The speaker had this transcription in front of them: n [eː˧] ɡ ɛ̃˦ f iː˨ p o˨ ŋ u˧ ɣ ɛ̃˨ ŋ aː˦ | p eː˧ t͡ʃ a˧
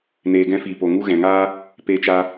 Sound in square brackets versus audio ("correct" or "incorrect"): correct